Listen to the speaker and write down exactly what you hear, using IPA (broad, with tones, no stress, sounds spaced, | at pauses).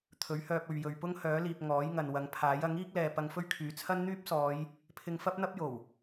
t̪ʰ ɵ˨˥ ɥ h œː˧ p̚ ɵ˨ ɥ j ɵ˨ ɥ p ʊ˥ ŋ h œː˨˥ l iː˨ p̚ ŋ ɔː˨˥ j ŋ ɐ˨ n w ɐ˨˧ ŋ pʰ aː˨˥ j ɐ˨˥ ŋ iː˥ k̚ l ɛː˨ p ɐ˧ ŋ f ɵ˥ ɥ kʰ yː˨˧ t͡sʰ ɐ˥ n n̪ yː˥ p̚ s ɔː˨˧ j | pʰ ɪ˧ ŋ f ɐ˥ p̚ n̪ ɐ˥ p̚ j o˨˩ w